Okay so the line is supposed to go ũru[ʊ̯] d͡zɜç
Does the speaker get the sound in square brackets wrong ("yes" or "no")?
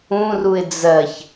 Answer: yes